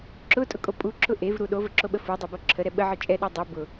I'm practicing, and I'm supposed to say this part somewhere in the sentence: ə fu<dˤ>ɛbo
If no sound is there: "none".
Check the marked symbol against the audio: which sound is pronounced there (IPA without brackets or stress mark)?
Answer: dˤ